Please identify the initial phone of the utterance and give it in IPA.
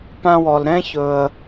p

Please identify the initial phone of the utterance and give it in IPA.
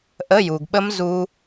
ʔ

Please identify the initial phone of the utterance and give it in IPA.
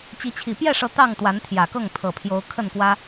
t͡ɕ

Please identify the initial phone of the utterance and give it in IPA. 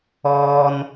ɔː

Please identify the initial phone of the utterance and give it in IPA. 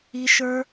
i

